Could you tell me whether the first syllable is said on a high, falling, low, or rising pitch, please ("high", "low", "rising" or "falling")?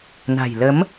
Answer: low